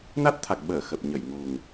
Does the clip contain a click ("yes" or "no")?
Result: no